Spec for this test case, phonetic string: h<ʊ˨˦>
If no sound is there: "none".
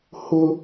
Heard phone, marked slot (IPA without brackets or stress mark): ʊ˦